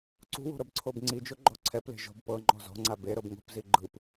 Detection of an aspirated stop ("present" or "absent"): present